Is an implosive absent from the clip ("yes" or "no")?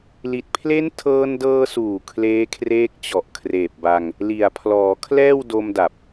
yes